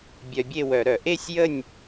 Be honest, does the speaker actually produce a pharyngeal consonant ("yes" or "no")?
no